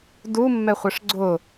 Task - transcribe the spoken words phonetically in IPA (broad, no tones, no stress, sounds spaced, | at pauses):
d u mː ɛ χʷ ə ʂ ɡ͡ǀ ʊ